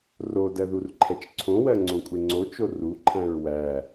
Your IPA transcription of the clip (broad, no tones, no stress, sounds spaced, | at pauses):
r o d ɜ ð u r ǃʰ ɛ t͡ʃ ǀʰ õ w ɜ ŋ͡ǀ õ kʷʼ e ŋ͡ǀ o t͡ʃ o r u ǃʰ æ̃ ɹ w æ